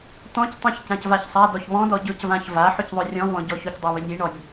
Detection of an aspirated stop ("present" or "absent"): absent